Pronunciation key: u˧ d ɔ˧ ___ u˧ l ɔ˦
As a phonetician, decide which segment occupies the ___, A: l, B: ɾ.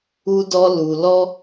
A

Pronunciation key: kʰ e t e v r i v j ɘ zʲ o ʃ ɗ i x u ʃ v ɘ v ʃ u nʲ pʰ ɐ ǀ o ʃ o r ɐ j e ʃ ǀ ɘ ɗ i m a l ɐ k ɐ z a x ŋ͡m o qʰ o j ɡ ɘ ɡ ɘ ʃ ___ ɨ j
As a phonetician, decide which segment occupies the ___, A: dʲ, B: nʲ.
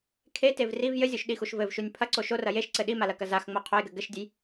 A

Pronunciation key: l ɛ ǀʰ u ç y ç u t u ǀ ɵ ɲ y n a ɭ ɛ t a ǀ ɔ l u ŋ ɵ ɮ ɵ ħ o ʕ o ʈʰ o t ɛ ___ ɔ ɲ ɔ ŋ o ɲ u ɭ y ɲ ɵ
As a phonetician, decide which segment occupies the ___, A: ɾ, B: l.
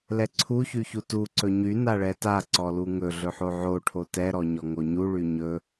A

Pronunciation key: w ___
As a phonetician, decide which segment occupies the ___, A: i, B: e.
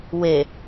B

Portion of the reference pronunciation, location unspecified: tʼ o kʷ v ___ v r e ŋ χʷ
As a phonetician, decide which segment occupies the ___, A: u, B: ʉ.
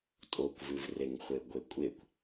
B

